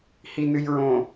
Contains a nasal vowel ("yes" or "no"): yes